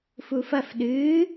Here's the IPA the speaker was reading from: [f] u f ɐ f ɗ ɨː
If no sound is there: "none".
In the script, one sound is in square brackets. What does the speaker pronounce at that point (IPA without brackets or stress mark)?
f